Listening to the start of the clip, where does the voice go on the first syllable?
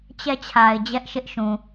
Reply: falling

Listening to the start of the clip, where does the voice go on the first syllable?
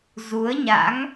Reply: rising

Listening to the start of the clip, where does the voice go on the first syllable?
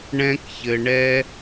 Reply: high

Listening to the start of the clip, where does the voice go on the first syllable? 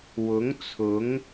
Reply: rising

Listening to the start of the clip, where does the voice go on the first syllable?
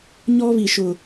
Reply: high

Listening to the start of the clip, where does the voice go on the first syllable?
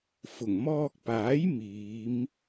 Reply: low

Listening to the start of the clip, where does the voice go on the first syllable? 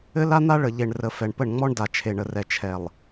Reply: high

